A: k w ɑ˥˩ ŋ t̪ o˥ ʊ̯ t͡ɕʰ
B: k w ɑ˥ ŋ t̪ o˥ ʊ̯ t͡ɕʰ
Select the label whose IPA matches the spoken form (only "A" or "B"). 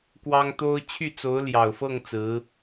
B